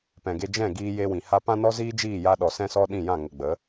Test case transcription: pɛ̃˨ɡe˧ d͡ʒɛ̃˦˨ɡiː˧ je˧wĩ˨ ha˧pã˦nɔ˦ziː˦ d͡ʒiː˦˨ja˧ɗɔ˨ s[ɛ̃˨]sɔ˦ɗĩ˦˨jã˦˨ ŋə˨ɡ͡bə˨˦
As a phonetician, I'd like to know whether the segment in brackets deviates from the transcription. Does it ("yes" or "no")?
yes